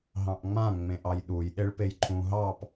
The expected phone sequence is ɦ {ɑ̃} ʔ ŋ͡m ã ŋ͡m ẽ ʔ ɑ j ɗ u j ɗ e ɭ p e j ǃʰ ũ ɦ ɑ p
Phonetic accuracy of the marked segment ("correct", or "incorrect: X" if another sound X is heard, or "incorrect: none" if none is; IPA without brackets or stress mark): correct